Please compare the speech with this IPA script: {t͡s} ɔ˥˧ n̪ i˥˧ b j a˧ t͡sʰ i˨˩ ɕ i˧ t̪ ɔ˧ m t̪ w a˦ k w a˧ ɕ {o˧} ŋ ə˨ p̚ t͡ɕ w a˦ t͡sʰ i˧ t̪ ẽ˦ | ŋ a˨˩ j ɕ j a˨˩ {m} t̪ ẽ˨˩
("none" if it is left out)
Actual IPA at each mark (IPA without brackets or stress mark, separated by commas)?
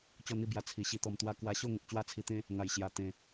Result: t͡ɕ, o˥˧, none